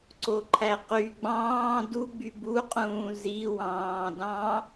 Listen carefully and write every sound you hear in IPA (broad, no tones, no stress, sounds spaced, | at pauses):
ǀ o ǃʰ æ q y ɡ͡b ɑ̃ː d u ɡ͡b y b u qʼ ũː z i w ɑ̃ː d ɑ̃